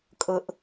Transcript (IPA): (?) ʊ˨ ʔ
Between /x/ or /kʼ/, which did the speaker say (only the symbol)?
kʼ